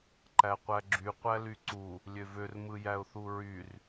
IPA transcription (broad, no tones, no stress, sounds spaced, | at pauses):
ǃ æ qʷ æ ɡ͡ǁ y qʷ æ l y ǀ u | lʲ ø v ø r m ɯ j æ ʊ̯ θ u ɹ y r